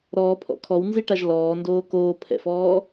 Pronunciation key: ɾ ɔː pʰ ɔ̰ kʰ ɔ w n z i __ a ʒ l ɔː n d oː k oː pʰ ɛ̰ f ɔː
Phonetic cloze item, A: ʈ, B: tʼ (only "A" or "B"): A